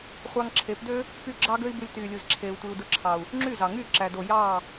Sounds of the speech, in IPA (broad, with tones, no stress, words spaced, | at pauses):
χʷɑ˧ŋǁʰe˨˦pdø˦ | py˦˨ ɡ͡ǁɑ˦ɡø˦i̯bɯ˧lʲ tyː˨lʲɯ˨z ǁʰeː˨u̯tʷi˨u̯dɯ˨˦ǁʰɑ˨u̯ | ŋ͡ǁy˦˨zɑ˨ŋyː˦˨ ǁæ˨do˨ jɑː˦˨